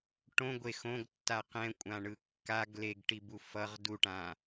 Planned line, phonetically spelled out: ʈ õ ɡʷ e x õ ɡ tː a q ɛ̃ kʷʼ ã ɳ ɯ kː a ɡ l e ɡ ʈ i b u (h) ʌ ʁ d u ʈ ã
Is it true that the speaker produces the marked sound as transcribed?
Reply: no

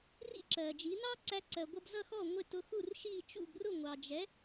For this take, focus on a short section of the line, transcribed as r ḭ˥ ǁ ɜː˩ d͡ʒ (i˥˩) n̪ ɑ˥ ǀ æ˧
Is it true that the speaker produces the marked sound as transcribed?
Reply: no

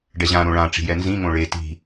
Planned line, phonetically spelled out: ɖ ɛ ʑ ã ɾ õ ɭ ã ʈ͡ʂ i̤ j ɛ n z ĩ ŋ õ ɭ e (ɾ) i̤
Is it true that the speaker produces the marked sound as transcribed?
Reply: no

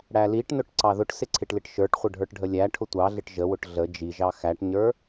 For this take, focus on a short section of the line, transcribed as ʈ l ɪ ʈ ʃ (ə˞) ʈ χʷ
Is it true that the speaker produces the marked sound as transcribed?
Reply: yes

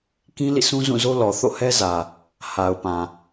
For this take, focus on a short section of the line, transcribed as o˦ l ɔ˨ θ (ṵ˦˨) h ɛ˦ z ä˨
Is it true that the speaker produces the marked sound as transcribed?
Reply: no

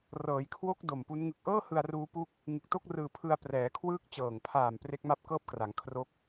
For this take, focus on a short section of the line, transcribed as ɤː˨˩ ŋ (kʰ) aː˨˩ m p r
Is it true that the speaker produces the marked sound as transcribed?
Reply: no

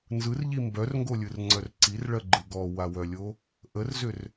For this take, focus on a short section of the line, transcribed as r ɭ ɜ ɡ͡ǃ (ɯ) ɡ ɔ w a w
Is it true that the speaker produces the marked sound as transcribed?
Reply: yes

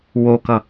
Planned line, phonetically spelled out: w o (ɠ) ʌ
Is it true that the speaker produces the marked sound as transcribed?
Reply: no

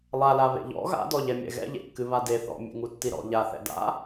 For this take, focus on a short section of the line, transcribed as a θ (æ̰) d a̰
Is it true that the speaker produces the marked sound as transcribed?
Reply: no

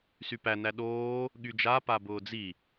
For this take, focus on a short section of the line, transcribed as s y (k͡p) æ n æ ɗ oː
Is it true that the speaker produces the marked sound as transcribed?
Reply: no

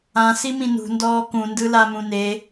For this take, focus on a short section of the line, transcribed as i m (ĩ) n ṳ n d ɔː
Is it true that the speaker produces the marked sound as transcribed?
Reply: yes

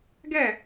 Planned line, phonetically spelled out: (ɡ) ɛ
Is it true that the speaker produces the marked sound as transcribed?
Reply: yes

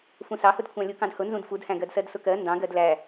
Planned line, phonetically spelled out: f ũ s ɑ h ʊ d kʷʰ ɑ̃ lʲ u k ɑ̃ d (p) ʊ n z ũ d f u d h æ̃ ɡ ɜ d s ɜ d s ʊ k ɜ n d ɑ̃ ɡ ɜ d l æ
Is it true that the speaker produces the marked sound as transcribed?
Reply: no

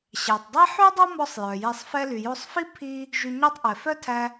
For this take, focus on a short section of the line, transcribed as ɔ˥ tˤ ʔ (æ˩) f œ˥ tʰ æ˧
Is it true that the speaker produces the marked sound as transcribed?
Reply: no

